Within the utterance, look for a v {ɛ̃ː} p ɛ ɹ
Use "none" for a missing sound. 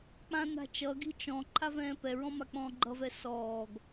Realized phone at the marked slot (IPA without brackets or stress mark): ɛ̃ː